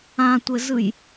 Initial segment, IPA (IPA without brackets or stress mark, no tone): ã